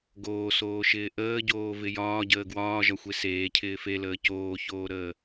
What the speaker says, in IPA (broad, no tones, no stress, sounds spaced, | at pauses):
ɡ oː s oː ʃ ɪː ʔ əː ɟ oː v ɪ j ɒː ɟ əː ɡ w ɒː ʒ ɒ xʷ e s eː cʰ ɪː f e l əː c oː ç oː ɾ əː